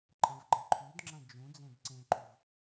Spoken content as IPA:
ǃʼ ɐ̃ v ɡ͡ǃ ɐ̃ ǃʰ ʉ d ŋ͡ǁ ɐ̃ d͡ʒ ũ d͡z ẽ d ǀ ẽ ǃ u v

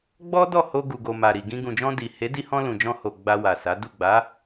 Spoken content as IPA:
ɡ͡b ɔ˦ d ɔ˦˨ h o˧ ɡ u˨ ɡ o˨ m a˨ ɾ i˨ ɡ ĩ˧ ɡ ũ˨ d͡ʒ ɔ̃˧ d i˨ h e˨˦ d i˧ h ɔ̃˧ l ũ˨ d͡ʒ ɔ̃˧ h o˨ ɡ͡b a˧ w a˨ s a˨˦ d u˦˨ ɡ͡b a˨˦

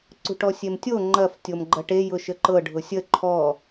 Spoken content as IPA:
ǀ ṳ ʈ ɔ sʲ e m tʲ o ŋ͡ǃ ɐ f tʲ o m ɡ͡ǃ ɐ ʈ e j ʊ ʃ ə ǃ ɤ ɖʱ ʊ sʲ ə ǃʰ ɔ

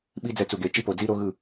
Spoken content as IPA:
ɓ i˦ d͡z ɛ˧ t͡s u˨ ɡ e˨ t͡ʃ i˦ p o˨ d͡z i˦ ɾ o˦ ɣ ɯ˦˨

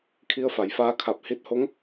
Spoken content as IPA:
kʰ i˧ ə̯ f a˩˧ j f aː˧ kʰ a˧˩ p̚ h i˧˥ t̚ h o˧˥ ŋ

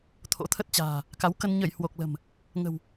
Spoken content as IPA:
t̪ʰ o̰˧˥ t̪ʰ ə˦˥ t̚ t͡ɕ a̤ː˨˩ | k a˨˦ w k ə˧ n ɲ ə˧˩ j h w o˨˩ k̚ l ə̤˨˩ m | ŋ ə̤˨˩ w

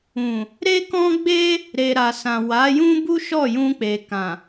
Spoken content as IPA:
ũ˨ | ɾ e˦ k ɔ̃˦ ɡ͡b e˦ | ɾ e˨ ɾ a˨ s ã˨ w a˨˦ j ũ˦ b u˦ ʃ ɔ˦˨ j ũ˧ k͡p e˨ k ã˨

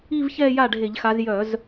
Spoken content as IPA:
i˥˧ v ç ɛː˥˧ j a˥˩ ɖʱ e˧˩˧ ʎ x a˨˦ z j œ˧˩˧ z

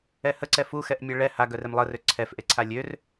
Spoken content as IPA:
ɛ h ə ǀ ɛ f u x ɛ ʔ mʲ a ɭ ɛ h a ɡ œ r e m lˠ ə r ø ǀʰ ɛ f ʔ e ǀʰ a lʲ ø r

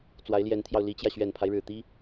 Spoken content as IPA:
t͡s w a˧˥ ɪ̯ l j ɛ˧˥ n t̪ʰ j ɑ˧ ʊ̯ l i˧˥ t͡ɕ j ä˧ ɕ ɥ ɛ˨˩ n pʰ a˦ ɪ̯ ɻ ɻ̩˨˩ t̪ i˥

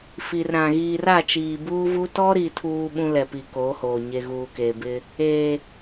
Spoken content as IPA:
f i˨ r ɾ ã˨ ɣ iː˨ r a˦˨ t͡ʃ iː˨ b uː˦ v u˦ t ɔ˦ ɾ i˨ tʰ uː˨ ɓ ũ˦ l ɛ˨ p i˨ k oː˨˦ h oː˨ ɲ e˨ ɣ uː˨ k eː˨ b ɪ˦ | e˨

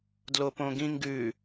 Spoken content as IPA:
d l o p õ ɡ ĩ ŋ ɡ ʉ

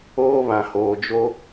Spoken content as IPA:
oː˦ β ã˨ h oː˨ d͡ʒ o˦

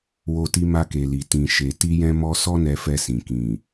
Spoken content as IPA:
w o˧ t i˧ m a˧ k e˨ l i˨ t ĩ˨ ʃ e˨ t i˧ j ɛ̃˧ m ɔ˧ s ɔ˦ n ɛ˧ f ɛ˧ s ĩ˨ k ĩ˨

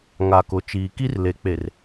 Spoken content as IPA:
ŋ a˨ k ʊ˨ t͡ʃ iː˨ k i˦ r l e˨˦ k͡p e˨ r

